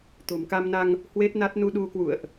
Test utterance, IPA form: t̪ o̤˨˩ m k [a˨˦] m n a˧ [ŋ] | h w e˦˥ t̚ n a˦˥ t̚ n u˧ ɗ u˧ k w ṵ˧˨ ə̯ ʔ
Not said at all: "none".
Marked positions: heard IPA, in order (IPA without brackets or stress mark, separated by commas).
a˧, ŋ